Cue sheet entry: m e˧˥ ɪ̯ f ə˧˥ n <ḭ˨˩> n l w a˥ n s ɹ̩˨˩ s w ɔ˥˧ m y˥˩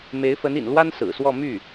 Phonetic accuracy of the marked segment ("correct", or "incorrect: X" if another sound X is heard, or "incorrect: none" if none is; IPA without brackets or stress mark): correct